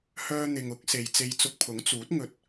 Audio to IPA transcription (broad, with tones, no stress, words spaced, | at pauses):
hœː˧n̪ɪ˨ŋʊ˨˥k̚ se˨jt͡se˧jt͡sʊ˧k̚ pʰʊ˨˥ŋt͡suː˨˥t̚ŋɵ˧t̚